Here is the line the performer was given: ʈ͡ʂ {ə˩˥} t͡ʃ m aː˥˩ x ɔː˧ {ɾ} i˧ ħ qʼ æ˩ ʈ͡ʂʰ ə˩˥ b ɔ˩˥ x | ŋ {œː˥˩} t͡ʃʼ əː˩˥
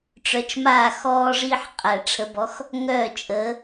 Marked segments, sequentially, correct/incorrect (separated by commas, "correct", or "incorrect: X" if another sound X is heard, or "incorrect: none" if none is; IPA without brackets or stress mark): incorrect: œ˩˥, incorrect: ʐ, correct